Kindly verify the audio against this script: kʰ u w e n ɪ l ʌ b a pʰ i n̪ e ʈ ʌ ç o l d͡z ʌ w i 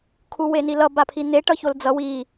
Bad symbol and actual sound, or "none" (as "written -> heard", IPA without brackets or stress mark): ɪ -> i